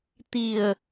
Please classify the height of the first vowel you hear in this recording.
high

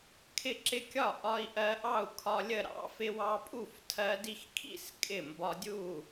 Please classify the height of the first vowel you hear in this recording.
high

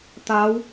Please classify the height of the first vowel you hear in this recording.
low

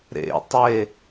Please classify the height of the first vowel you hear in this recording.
mid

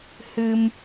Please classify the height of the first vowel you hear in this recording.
high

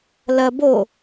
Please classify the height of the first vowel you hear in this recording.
low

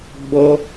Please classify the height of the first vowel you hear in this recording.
mid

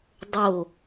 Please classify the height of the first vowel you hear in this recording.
mid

